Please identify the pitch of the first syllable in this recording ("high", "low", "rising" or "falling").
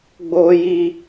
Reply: low